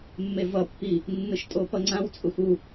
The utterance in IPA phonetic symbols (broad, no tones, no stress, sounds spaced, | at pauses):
mː e v ʌ pː i | nː ɯ ʃ tʼ o p ʌ ŋ͡ǀ ã w t͡sʼ u x u